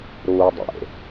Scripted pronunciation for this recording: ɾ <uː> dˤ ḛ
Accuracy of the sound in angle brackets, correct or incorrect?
correct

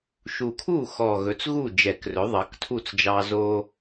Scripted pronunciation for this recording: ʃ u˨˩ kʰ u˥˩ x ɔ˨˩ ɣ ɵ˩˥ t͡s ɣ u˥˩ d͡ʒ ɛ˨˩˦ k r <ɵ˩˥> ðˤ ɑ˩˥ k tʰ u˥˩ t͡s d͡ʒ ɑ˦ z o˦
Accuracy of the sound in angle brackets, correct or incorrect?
correct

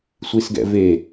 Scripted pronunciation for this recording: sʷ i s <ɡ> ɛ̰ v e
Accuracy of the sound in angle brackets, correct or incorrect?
correct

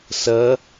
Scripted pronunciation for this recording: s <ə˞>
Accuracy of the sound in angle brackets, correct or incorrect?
incorrect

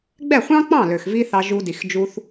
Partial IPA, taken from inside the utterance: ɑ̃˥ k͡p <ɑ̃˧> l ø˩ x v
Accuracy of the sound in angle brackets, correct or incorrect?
incorrect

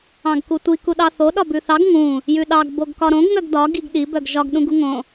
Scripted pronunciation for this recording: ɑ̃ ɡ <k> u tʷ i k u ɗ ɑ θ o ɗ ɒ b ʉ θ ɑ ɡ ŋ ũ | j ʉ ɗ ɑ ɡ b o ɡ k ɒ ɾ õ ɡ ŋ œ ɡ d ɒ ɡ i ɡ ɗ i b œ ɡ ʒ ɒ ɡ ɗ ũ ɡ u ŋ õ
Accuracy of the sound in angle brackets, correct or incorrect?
correct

